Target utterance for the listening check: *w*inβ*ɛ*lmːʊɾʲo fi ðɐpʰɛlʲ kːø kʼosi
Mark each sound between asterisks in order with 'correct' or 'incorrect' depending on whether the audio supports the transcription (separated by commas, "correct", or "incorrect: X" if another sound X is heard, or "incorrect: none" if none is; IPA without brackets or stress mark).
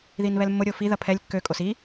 incorrect: ð, correct